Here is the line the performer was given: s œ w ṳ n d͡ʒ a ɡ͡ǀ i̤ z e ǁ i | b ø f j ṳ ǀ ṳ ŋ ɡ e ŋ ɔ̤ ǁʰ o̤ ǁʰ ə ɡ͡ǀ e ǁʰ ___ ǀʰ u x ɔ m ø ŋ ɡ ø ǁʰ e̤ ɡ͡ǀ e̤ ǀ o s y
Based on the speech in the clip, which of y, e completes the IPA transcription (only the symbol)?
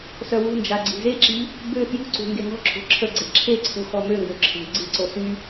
e